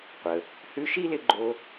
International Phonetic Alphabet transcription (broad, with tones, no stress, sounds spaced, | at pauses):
qʷ ə˨ | h ʉ˦ ʃ i˥ l ɪ˦ ɡ͡ǃ o˦